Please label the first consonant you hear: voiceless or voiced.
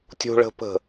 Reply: voiceless